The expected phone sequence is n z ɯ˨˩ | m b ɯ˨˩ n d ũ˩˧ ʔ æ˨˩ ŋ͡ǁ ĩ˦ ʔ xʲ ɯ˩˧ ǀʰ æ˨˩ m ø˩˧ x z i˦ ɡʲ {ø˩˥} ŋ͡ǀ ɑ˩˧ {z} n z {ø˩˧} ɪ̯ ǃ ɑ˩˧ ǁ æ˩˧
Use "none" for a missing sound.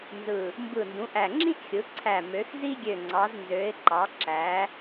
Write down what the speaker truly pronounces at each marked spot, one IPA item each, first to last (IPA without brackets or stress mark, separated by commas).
ø˨˩, z, ø˩˧